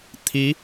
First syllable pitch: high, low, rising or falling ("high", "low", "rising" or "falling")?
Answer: rising